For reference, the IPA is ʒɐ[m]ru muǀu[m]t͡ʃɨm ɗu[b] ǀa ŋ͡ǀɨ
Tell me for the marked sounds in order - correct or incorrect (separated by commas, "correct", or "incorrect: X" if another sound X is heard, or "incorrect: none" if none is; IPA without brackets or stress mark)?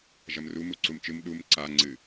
correct, correct, incorrect: m